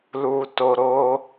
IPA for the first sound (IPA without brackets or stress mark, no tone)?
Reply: l